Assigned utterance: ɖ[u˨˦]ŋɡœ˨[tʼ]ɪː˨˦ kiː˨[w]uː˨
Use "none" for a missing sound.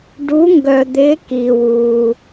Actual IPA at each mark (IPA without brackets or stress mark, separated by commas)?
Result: u˨˦, d̪, w